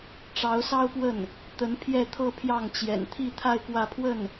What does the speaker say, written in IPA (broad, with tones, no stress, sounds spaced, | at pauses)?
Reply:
ʈ͡ʂ ɑ˧˥ ʊ̯ s ɑ˥ ʊ̯ p w ə˥˩ n | t̪ ə˧˥ n pʰ j ɛ˥˧ t̪ʰ ɤ˥˧ pʰ j ɑ˥˩ ŋ t͡ɕ j ɛ̰˨˩ n t̪ʰ i˥˧ t̪ʰ a˥˧ ɪ̯ k w ä˥˧ pʰ w ə˥˩ n